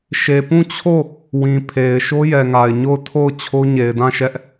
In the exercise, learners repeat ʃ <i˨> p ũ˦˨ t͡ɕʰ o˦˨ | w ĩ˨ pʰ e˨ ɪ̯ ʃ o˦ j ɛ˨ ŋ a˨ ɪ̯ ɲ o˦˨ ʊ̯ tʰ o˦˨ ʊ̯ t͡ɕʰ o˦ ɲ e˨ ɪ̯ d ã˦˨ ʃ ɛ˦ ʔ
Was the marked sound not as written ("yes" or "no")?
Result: yes